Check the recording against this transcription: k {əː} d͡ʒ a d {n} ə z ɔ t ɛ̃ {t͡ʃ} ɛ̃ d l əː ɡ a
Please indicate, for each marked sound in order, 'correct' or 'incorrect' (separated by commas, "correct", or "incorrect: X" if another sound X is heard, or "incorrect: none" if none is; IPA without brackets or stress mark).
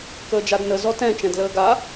correct, correct, correct